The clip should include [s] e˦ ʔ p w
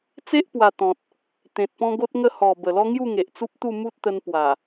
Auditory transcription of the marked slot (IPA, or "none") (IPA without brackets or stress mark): t͡s